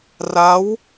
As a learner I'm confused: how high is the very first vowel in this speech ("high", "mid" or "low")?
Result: low